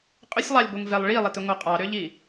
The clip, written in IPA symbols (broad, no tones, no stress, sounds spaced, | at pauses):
qʼ ʏ sʲ lˠ ɑ lʲ ɡʷ e ŋ v ɛ lˠ ɭ i lˠ e t ʏ ŋʷ ɑ qʼ ɑ ɾ ʏ ʎ i